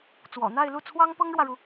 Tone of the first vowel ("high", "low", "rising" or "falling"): low